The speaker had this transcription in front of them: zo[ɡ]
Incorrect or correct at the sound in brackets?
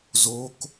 incorrect: k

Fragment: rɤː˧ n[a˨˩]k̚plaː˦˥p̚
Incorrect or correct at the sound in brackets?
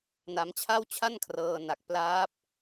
correct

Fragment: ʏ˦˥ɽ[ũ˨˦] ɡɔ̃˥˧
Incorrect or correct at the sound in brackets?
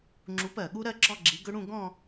incorrect: ũ˥˧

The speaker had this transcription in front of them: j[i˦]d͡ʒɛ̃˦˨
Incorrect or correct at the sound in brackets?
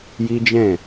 correct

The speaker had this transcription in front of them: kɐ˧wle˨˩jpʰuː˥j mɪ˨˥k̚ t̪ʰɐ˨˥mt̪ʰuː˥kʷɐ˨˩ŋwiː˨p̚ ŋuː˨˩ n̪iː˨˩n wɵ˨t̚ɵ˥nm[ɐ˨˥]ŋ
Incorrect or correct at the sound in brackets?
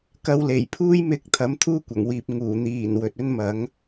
correct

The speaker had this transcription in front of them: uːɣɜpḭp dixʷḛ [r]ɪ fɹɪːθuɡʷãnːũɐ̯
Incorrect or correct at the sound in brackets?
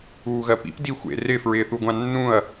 correct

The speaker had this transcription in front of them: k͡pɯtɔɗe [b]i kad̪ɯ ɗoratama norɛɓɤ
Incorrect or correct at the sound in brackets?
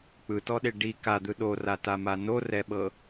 incorrect: ɖ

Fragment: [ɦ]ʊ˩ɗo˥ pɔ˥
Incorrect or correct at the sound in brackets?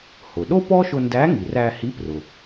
incorrect: h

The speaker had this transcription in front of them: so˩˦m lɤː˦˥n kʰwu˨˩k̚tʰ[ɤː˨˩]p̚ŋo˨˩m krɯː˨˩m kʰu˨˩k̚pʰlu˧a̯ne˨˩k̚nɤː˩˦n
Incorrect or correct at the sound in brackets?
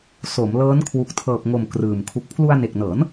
correct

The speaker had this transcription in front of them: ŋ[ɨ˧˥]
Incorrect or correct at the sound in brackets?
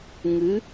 correct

